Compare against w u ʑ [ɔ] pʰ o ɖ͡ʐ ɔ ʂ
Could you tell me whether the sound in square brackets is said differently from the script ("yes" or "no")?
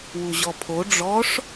no